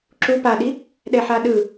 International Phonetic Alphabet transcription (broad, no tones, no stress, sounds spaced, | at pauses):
ǁ u p a ɗ i | ɗ ɛ ħ a ɗ ɯ